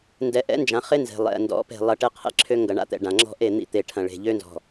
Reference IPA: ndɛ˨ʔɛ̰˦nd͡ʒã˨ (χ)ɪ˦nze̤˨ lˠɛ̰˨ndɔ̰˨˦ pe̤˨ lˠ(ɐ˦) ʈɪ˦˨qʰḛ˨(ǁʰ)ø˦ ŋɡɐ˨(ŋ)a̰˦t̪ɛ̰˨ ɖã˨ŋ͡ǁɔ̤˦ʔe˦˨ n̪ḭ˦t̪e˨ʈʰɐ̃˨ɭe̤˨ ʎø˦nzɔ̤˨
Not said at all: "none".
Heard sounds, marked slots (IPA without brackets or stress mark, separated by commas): χ, ɐ˨, ǁʰ, ɳ